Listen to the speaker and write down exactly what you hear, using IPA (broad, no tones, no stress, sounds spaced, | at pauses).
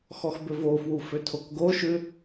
x ɔ x b ʏ v o f w u f ʏ tʰ o k ɡ o ʃ ʉ